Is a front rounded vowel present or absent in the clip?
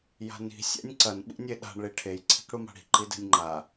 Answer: absent